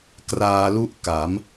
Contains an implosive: no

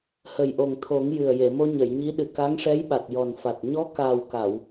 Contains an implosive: yes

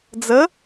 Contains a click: no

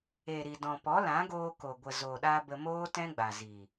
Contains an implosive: yes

